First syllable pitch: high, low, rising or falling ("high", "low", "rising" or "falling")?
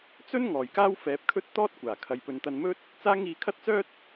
high